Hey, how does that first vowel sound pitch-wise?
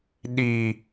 low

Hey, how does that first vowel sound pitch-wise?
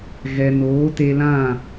low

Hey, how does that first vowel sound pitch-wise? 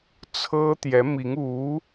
high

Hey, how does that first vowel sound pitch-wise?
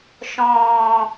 low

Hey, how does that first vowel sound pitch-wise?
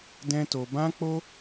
high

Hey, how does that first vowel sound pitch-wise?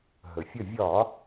low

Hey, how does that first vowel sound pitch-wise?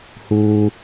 high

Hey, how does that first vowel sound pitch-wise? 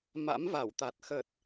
rising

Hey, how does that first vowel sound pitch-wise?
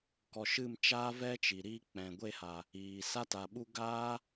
low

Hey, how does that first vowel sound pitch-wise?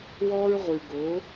high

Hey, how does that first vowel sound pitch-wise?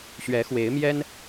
rising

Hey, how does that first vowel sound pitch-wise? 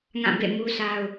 falling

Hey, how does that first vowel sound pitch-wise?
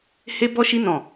high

